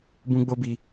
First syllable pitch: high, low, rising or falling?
high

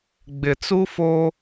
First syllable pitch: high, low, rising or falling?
low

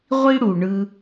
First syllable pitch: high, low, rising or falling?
high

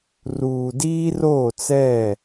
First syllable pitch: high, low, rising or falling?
low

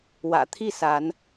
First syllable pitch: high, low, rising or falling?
low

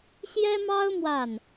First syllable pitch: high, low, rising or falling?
high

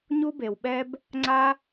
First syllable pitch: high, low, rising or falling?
high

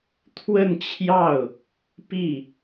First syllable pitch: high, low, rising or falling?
falling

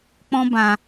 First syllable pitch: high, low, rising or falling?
high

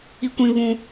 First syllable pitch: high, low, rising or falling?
high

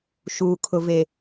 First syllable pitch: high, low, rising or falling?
low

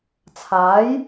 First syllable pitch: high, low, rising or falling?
rising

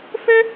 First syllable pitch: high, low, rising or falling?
high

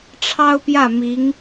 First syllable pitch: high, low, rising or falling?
high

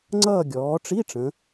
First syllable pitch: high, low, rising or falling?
falling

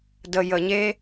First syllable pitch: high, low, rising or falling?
low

